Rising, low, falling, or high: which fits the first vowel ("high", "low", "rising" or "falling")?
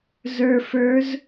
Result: low